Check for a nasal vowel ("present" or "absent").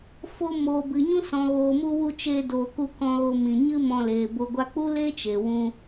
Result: present